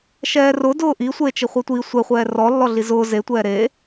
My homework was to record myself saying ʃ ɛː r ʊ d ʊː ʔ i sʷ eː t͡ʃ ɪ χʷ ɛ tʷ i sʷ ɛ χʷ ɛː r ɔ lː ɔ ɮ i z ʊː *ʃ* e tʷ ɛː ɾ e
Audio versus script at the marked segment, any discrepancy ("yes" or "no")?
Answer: yes